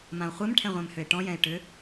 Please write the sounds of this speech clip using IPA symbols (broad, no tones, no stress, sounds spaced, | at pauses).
m ã o̯ χʷ ɛ m ʈʰ ɛ̃ ʁʷ ɛ̃ m h ʏ e̯ ʈ ɔ̃ j ɛ̃ e̯ ʈ ʏ